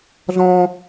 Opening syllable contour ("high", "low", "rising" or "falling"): high